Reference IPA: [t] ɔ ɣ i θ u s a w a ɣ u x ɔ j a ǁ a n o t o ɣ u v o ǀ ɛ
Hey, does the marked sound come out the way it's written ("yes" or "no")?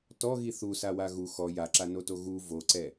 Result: yes